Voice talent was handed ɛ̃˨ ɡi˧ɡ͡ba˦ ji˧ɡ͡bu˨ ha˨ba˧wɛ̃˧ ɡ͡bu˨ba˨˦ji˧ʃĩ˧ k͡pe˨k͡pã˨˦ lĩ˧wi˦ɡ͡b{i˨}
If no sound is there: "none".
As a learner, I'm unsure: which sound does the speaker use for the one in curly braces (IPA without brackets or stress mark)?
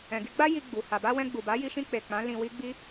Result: i˦